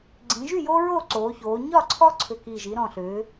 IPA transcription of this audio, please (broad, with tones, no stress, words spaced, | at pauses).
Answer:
ɡ͡ǀĩ˩˧ʒy˥˨jo˦ ɹoː˥˨ǀoː˩˧çoː˩˧ ɲɒ˥˨ǀʰɔ˦ ǀʰʏ˨˩ki˨˩ʒi˩˧ ɾɔ̃˨˩ɬʏː˩˧